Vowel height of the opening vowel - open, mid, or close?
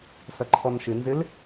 open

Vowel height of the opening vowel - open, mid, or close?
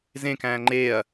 mid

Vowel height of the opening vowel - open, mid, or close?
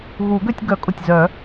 close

